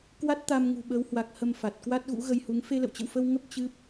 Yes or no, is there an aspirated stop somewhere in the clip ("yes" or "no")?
no